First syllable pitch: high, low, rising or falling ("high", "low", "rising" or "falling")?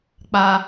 high